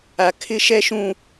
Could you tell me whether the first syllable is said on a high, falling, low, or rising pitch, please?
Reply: high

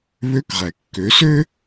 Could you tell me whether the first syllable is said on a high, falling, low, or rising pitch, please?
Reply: rising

